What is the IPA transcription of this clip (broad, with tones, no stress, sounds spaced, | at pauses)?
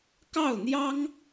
k ɑ˥˩ ʊ̯ n̪ j ɑ˥ ŋ